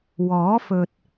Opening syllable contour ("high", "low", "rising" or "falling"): rising